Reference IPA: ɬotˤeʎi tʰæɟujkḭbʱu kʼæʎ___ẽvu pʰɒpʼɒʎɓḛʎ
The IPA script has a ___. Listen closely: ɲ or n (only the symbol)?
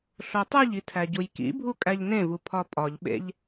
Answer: n